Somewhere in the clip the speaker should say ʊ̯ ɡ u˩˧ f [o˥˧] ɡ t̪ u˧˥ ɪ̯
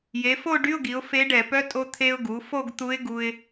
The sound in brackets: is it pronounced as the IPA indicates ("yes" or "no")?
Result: yes